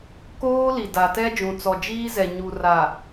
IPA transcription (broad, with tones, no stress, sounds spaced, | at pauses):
k oː˦ l i˨ d a˨ t ɛ˦ d͡ʒ ũ˨ t͡s ɔ˨ d͡ʒ iː˦ z ɛ˨ ɲ u˨ r a˨